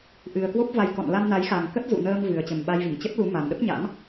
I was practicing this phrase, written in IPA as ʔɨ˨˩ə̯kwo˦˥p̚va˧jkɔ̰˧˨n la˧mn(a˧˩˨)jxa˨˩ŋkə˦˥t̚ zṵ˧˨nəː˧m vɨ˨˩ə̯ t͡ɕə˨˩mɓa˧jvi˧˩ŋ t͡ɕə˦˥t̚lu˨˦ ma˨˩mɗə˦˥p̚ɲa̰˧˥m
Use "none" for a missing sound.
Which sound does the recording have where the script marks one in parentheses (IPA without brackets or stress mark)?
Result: a˨˦